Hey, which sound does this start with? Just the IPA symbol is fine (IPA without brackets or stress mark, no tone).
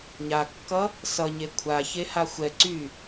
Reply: ɲ